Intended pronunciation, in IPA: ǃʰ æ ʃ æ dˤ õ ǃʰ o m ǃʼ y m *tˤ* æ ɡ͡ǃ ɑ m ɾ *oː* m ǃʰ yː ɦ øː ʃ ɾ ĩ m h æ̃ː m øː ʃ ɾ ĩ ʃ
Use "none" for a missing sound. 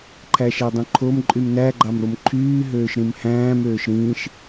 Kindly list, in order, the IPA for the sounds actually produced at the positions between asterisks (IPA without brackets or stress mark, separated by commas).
n, o